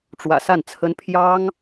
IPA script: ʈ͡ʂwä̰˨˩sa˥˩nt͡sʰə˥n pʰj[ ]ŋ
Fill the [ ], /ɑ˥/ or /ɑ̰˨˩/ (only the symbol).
ɑ˥